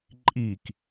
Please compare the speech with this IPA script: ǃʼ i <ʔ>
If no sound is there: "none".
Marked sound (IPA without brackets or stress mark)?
k